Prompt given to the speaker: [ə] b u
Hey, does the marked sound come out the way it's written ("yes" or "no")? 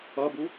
no